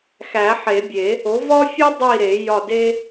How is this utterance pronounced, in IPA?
x æ˨˩˦ ħ e˨˩˦ bʲ e˨˩˦ | o˩˥ v ɒ˥ fʲ u˥ dˤ i˦˨ ɾ e˨˩˦ j ɒ˦˨ d e˥

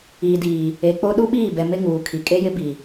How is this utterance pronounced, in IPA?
iː˨ d iː˨ | e˨ k͡p o˦ ɗ u˦ ɓ iː˦˨ b ɛ˨ m ɪ˦ ŋ uː˨ kʰ i˨ kʼ e˦ j ɪ˦ b i˨

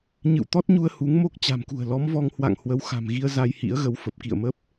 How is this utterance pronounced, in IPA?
ɲ ɨ̰˧˨ w t̪ ɔ˦˥ t̚ ɲ u˧ ə̯ h u˨˦ ŋ m o˦˥ k̚ t͡ɕ a̤˨˩ m k ṳ˨˩ ə̯ l ɔ˨˦ m v ɔ˧ ŋ h w a̰˧˨ ŋ h w ə˨˦ w x a̤˨˩ m ɣ i˧ ə̯ z a˧ j h ḭ˧˥ ə̯ ɣ ə˨˦ w f ə˨˩ p̚ k ḭ˧˨ ə̯ m ə˦˥ p̚

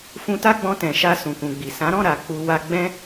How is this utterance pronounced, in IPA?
f ũ˧ t a˦ ɡ͡b ɔ̃˧ t ɛ̃˨ ʃ a˧ s ũ˨ k ũ˨ ɡ͡b i˨ s ã˨˦ ɾ ɔ̃˦˨ ɾ a˨ k͡p u˧ w a˧ ɡ͡b ɛ̃˦

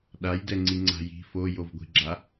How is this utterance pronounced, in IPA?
ɗ a j d ɛ ŋ͡ǀ i ŋ͡ǀ a̤ j i̤ f o j o v ɡʷ i̤ ɡ͡ǁ a

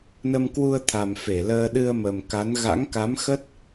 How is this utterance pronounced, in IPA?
n ə˧ m k w u˧ ə̯ t̪ʰ a˨˩ m f e˧˩ l əː˧ ɗ ɨ˧ ə̯ m ə˨˩ m k a˨˦ n ɣ a̰˧˥ ŋ k a˨˦ m x ə˦˥ t̚

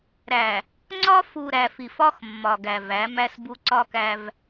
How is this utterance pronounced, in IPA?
ɾ æ˨ | ŋ͡ǀ ɒ˦ f u˨ ɾ æ˨ f i˨ f ɒ˦ x mː ɒ˨ ɡ æ˨ v æ˨˦ m æ˦ s b u˦ ǀ ɒ˦ k æ˦ v

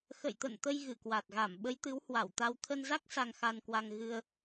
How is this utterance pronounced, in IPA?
x ə̰˧˨ j t̪ ə̰˧˨ n t̪ ə˧ j ɣ ɨ˧˩ k w a˨˩ t̚ ɣ a˧˩ m ɓ ə˨˦ j t̪ ɨ˨˦ w h w a˧˩ w t̪ a˧ w t̪ʰ ə˧ n z a˦˥ k̚ s a˧ ŋ x a˧ n k w a˧ ŋ ɣ ɨ˧ ə̯

